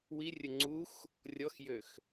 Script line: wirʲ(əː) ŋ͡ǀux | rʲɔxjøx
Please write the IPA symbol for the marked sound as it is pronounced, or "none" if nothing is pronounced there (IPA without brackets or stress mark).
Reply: ə